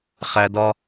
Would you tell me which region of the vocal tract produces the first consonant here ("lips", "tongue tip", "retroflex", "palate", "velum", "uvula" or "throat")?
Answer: uvula